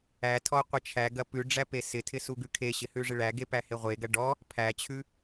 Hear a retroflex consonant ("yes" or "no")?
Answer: yes